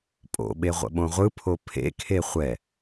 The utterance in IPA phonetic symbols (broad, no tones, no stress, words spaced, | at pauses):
pʼo̰ɓe ʁʷə̰ɓõʁʷɯpʰo pʰḛkʰe χʷɛ